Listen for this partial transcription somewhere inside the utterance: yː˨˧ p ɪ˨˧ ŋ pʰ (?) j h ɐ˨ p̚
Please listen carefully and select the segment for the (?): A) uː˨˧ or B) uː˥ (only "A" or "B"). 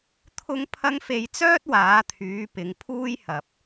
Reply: B